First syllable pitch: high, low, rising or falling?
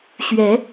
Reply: rising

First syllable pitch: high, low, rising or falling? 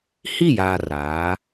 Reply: falling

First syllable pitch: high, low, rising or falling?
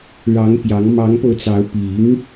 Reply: rising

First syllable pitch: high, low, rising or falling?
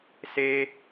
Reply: high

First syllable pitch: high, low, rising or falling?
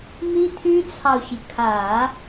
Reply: high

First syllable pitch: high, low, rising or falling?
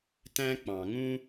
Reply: high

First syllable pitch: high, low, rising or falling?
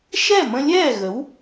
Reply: falling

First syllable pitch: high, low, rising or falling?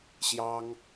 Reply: high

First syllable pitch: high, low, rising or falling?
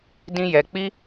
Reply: high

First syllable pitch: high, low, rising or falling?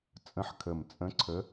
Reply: rising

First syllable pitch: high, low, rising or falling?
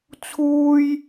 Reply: high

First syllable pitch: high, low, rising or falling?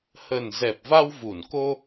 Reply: low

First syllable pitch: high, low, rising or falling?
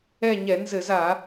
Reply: falling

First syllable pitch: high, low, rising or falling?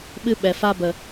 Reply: high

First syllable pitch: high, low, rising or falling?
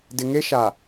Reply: low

